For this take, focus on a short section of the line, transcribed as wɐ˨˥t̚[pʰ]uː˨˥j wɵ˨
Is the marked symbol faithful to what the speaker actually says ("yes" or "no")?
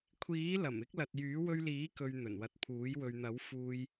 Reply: yes